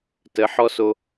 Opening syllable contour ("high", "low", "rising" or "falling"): rising